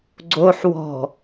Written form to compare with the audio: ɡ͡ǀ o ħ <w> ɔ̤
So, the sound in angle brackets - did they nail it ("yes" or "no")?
yes